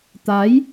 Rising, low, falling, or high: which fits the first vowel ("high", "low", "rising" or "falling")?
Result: rising